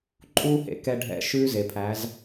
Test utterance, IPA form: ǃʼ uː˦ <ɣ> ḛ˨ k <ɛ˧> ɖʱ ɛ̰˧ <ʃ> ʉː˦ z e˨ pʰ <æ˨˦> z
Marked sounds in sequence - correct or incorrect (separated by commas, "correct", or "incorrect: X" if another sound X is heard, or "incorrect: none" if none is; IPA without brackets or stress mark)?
incorrect: h, correct, correct, correct